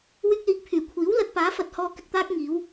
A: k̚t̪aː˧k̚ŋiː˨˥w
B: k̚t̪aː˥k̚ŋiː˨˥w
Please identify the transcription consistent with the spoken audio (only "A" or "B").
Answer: B